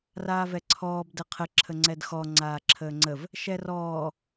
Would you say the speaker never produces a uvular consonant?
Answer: no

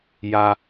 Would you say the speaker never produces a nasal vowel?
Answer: yes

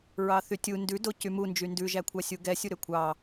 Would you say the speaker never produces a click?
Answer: yes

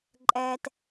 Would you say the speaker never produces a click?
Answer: no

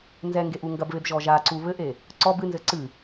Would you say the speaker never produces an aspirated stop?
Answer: yes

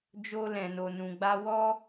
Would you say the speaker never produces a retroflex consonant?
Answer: yes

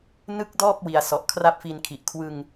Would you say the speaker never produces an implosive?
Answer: yes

